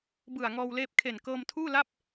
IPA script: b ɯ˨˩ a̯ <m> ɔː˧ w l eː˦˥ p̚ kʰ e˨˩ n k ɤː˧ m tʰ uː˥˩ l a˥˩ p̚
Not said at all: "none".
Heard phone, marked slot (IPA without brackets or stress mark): ŋ